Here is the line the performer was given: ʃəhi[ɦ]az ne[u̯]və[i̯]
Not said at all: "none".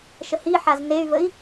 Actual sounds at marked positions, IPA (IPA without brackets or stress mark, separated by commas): ħ, y̯, i̯